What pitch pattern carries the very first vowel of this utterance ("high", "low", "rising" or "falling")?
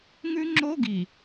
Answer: high